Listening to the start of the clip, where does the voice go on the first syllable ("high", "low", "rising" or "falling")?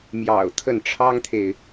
low